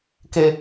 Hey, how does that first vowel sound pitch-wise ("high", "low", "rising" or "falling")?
high